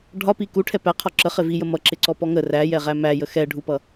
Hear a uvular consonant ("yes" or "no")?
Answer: yes